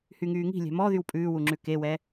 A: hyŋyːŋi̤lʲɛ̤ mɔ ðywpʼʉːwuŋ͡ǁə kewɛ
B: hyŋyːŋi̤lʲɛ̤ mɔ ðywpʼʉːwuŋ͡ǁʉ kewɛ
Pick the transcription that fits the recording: B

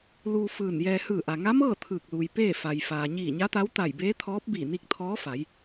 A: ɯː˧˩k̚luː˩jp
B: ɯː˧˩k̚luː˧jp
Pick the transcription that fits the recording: A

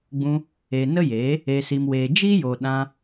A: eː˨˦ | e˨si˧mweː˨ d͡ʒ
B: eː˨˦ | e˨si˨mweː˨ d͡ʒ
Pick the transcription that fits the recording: B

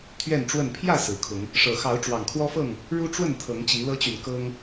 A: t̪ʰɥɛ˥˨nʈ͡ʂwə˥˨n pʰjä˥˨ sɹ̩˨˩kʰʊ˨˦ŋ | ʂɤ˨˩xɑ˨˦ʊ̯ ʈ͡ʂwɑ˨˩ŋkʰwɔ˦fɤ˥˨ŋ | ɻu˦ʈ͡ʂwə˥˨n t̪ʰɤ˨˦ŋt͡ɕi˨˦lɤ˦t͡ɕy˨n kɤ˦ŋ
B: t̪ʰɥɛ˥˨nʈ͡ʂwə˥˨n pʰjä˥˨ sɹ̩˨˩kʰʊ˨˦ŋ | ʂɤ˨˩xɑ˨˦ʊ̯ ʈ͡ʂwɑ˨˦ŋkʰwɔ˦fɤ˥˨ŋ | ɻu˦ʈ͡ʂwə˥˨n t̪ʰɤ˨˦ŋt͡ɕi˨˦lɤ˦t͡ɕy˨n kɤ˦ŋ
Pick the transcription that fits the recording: A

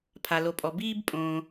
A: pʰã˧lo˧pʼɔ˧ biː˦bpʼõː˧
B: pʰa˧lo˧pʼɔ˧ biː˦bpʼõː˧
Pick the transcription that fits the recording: B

